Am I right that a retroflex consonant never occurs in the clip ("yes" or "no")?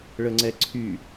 no